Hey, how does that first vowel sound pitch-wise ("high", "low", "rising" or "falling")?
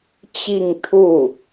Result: falling